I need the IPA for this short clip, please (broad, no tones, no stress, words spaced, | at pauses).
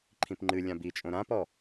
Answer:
ǃʰĩpŋ͡ǃɨlʲã bit͡ʃʼõ ɾãpɔ